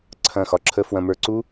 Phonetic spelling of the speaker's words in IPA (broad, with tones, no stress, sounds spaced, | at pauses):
ǀʰ ɐ̃˦˨ x ɒ˦ ǁʰ ə˦ f w ɐ̃˧ m ə˞˧ ǀ u˦